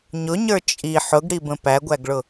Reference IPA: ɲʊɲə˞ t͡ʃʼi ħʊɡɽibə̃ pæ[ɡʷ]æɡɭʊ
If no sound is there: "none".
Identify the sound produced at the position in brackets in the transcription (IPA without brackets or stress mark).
ɡʷ